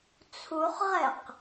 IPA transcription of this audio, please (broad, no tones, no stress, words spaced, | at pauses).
t͡sʰuχʁɛq